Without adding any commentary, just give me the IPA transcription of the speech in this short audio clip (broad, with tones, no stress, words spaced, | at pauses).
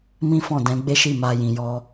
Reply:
mĩ˦fɔ̃˦˨dɛ̃˨˦ ɡ͡be˦ʃi˦˨ma˧ jĩ˨jɔ˧